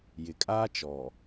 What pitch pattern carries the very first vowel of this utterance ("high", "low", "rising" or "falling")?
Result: low